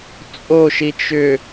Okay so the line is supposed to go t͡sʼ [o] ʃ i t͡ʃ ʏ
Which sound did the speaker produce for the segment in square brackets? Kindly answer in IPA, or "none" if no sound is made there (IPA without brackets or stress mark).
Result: o